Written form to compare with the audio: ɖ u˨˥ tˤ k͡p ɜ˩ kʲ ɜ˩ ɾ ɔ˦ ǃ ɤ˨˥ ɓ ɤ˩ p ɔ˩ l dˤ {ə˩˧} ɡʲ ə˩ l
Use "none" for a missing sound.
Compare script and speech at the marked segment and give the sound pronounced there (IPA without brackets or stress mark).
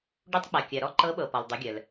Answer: ə˩˧